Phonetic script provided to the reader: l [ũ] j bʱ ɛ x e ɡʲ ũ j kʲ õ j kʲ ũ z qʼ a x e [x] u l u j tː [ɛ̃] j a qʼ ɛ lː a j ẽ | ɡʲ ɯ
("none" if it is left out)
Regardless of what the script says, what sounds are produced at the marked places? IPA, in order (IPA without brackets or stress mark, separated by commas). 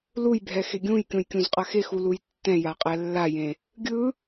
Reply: u, x, ɛ̃